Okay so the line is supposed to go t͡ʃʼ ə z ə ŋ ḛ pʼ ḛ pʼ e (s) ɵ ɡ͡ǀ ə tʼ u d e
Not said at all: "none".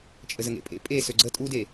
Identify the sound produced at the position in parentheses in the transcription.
s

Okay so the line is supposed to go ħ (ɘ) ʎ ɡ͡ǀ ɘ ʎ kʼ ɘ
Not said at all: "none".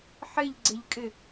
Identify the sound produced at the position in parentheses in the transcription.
ɘ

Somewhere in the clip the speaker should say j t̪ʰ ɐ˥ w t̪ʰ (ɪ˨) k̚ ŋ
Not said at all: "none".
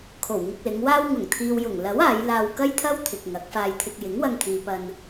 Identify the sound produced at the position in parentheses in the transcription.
ɪ˨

